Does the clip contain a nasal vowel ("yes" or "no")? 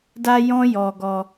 yes